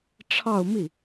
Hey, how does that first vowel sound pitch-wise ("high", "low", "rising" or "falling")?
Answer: falling